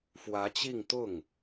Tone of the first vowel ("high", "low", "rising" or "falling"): rising